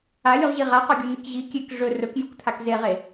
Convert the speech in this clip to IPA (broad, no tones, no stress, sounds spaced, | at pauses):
a lʲ u ʁ ʑ i ʁ a q o ɡʲ u n i k ʑ i kʲ e k ʐ ɵ r ɵ k j u k t̪ʰ a k z e ʁ e